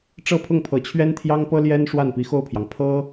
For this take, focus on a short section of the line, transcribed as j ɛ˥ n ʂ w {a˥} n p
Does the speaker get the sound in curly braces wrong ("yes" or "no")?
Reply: yes